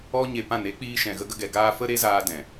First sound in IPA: ɔ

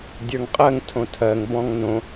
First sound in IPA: dʲ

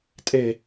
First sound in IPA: tʼ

